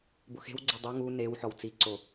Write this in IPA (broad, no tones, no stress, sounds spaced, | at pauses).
b ʊ x e̤ w ɡ͡ǀ e dˤ i ŋ u n e w ħ ɔ w t͡s i ǀ o